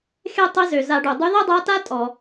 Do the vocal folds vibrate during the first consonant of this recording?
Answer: no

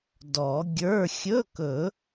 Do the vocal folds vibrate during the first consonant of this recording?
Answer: yes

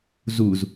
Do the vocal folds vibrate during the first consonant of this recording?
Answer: yes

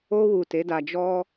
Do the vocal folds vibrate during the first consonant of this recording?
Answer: yes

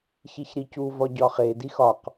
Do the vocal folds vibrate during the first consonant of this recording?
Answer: no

